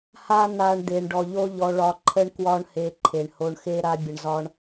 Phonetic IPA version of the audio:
h a˦ n̪ a˧ ɳ d̪ e˨ ɳ ɖ ɔ˨ ʎ o˦ ʎ ɔ˧ ɭ ɒ˧ ǃʰ ə˦ ɳ k w ɒ˦ ɳ h e˧ ǃʰ e˨ ɳ h o˧ ɳ x e˦ ɾ a˦ bʲ ə˧ ɳ z ɒ˦ ɳ

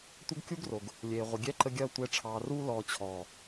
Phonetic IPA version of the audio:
tʷ ɐ˦ ɡ kʲ u˦ ɡ r o˨ ɡ | lʲ eː˨ ʁʷ ə˨ ɡʲ ɛ˦ ǃ ə˧ ɡʲ ɐː˧ tʷ ɛ˨˦ ʈ͡ʂʰ ɑː˨ r uː˧ l ɔː˨ t͡ɕʰ ɔː˨

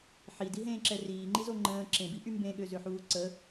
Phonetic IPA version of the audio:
ħ i d i ɦ ẽː ǁ ɛ r iː ŋ͡ǃ i z o ŋ͡ǃ ə̃ː ǁ ẽ b i ʔ y m b ẽ ɠ ø z ø ħ uː ǀ ə

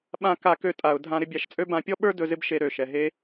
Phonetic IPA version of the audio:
ɓ ã˧ k a˧ k ø˧ tʼ a˩ ʊ̯ dʱ ã˧ ɾ ɪ˧ bʲ a˧ ʃ t͡sʼ ø˥ b ã˧ pʲ ɔ˥ ɓ ə˞˥ d ɵ˧ z ɪ˥ b ʃ e˧ ɾ ø˩ ʃ ɛ˩ ɦ e˥

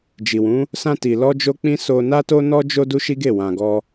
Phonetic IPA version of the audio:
d͡ʒ i˨ w ũ˨˦ | s ã˧ t i˨ l ɔ˧ d͡ʒ o˧ k͡p ĩ˦ s o˧ n a˦ t o˦ n ɔ˦ d͡ʒ o˦ d u˦ ʃ i˦ ɡ e˦˨ w ã˧ ɡ ɔ˦

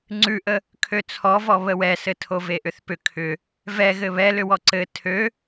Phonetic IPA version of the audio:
ŋ͡ǀ ʉ ʔ ə | kʰ ø t͡sʰ ɔ v ɔ β ə w ɛ s ɘ tʰ o v e ʔ ʏ θ p ʏ kʰ ʏ | v ɛ ɣ ɘ β ɛ l ʏ w ɔ ǀ ɘ tʰ ø

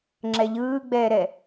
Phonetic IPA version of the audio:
ŋ͡ǁ ɛ ʎ ɯː ɡ͡b ɛː ɾ ɛ

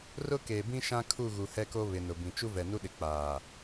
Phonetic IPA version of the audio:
r ʊ˦ k eː˨ b ĩ˦ ʃ ã˦ kʰ u˦˨ ɣ u˨ h ɛ˦ k o˦ β ɪ˨ n ʊ˨ b ĩ˨ t͡ʃ u˦ v ɛ˨ n u˦ ɗ ɪ˨ k͡p aː˨

